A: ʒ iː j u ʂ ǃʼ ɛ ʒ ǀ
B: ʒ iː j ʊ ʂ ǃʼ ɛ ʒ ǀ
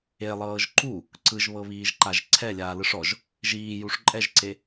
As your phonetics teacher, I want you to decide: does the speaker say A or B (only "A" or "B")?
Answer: A